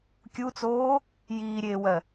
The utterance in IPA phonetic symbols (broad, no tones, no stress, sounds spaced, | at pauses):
kʲ u t͡s oː | j iː ɾʲ eː w ɜ